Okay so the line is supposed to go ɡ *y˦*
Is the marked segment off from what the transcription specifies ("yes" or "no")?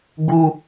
yes